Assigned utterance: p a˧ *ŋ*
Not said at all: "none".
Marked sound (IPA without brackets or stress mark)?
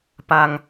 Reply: ŋ